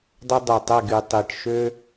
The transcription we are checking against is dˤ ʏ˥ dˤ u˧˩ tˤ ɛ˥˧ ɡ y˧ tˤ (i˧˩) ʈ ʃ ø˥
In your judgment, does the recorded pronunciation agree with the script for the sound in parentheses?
yes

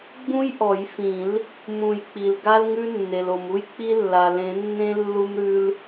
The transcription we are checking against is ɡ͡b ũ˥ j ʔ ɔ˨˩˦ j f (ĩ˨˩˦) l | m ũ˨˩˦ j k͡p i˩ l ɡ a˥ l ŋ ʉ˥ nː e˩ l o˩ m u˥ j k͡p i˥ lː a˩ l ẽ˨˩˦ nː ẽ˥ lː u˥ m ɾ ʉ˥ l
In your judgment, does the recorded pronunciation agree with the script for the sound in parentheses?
yes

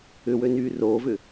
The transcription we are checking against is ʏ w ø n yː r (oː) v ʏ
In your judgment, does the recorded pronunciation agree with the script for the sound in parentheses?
yes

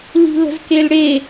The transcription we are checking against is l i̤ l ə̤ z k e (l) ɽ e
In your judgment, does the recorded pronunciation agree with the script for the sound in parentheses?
yes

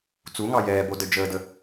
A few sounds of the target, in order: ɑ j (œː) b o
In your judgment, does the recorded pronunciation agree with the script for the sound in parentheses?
no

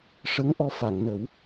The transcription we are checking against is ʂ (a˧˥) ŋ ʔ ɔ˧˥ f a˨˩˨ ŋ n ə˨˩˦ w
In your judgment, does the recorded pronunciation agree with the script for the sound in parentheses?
no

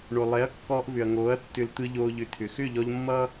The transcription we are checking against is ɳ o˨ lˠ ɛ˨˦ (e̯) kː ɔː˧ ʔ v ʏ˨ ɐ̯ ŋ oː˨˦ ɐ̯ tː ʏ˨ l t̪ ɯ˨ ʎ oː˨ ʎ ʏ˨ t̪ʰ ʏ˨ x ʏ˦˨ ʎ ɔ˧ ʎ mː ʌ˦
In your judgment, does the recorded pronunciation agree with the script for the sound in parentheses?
no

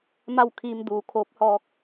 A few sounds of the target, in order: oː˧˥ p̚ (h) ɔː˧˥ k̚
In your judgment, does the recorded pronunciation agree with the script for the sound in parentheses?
yes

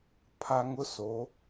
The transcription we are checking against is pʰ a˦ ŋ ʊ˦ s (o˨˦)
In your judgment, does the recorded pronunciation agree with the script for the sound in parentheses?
yes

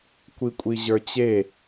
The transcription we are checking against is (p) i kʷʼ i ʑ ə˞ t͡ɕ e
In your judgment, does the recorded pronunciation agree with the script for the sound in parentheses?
no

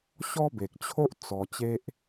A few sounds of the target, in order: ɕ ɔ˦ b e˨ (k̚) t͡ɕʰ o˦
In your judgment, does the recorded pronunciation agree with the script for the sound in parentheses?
yes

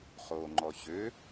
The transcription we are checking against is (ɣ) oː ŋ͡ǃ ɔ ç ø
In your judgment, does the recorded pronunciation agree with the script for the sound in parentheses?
no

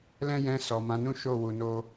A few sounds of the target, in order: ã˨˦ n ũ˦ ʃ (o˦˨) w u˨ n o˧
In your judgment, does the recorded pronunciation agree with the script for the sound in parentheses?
yes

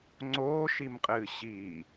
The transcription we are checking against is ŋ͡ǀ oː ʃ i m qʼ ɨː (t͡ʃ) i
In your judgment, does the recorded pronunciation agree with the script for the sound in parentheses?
no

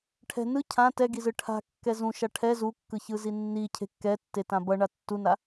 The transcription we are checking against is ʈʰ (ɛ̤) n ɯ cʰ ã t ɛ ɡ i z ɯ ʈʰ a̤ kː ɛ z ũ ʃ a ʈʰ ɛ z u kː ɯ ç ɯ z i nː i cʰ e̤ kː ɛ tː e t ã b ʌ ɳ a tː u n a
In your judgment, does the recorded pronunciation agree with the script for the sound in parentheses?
yes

